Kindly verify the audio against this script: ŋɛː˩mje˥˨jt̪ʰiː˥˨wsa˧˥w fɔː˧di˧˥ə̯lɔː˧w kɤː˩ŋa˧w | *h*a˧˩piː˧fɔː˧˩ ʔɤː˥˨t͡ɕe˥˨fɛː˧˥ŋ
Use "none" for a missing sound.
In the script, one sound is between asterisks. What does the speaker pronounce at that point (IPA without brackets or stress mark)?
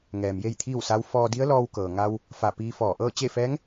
f